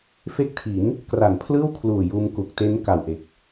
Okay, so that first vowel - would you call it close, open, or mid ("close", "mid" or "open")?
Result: mid